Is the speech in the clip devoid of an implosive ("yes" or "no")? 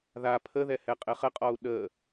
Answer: no